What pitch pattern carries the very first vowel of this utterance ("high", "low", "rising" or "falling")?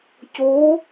rising